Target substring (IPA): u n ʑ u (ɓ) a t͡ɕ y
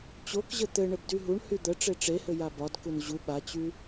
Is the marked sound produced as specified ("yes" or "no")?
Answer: yes